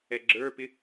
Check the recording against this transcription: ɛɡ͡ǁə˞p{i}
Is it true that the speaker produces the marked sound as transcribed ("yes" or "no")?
no